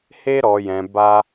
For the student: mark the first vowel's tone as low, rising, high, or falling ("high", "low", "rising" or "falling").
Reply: high